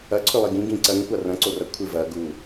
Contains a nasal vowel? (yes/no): yes